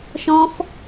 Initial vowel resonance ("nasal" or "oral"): nasal